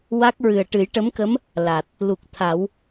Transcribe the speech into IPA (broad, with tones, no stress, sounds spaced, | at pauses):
w a˦˥ k̚ ɹ ɨ˨˩ ə̯ ʈ ɨ˨˩˦ j ʈ ə˧˥ m k ə˧˥ m | l a˨˩ t̚ | l u˨˩ k̚ t̪ʰ a˨˩˦ w